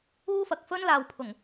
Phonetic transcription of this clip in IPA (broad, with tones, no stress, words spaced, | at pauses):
uː˥fɐ˨k̚fɵ˥nlaː˨w pʰʊ˨˩ŋ